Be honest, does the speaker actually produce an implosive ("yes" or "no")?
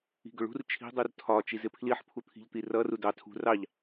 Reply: no